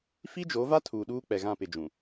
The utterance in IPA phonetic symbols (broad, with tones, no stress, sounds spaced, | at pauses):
f i˦ d͡ʒ o˨˦ v a˦ tʰ uː˨ ɗ uː˦ k͡p ɛ˨ ɣ ã˦˨ p ɪ˨ d͡ʒ ũ˨